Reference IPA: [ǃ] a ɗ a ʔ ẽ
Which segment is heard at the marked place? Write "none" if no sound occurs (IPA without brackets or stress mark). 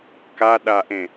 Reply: k